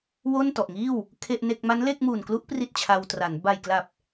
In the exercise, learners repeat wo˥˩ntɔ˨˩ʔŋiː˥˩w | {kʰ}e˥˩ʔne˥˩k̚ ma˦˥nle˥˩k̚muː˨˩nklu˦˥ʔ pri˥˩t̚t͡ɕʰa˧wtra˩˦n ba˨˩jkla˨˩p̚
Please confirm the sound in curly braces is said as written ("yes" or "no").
yes